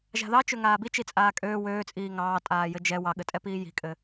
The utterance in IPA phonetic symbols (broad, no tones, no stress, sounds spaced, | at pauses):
ʒ a̤ ð ɑ t͡ʃ ø ŋ aː b i t͡ʃ i t͡sʼ aː kʼ øː w øː t͡sʼ iː ŋ ɑː tʼ aː j ɘ d͡ʒ ɛ w ɑ ɠ ɘ tʼ ɛ p iː j i̤ kʼ ɘ